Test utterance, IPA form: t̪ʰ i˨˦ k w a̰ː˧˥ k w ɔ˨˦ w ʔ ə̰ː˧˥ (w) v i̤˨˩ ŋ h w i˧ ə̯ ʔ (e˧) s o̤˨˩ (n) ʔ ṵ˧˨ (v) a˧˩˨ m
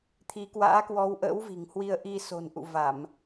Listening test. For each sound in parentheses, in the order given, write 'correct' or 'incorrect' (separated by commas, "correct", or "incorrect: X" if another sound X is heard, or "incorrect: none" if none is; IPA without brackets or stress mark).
correct, incorrect: i˧, correct, correct